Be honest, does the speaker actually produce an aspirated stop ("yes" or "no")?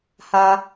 no